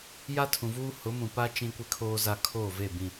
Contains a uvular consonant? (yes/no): no